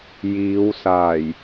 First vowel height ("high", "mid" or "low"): high